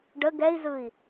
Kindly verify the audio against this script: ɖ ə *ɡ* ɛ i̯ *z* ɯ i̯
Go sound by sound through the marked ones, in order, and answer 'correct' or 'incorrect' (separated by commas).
correct, correct